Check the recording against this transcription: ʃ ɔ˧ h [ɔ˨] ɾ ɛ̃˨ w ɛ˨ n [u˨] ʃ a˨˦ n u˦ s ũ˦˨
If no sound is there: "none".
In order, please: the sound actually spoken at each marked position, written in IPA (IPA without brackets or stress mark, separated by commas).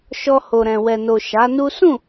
o˨, o˨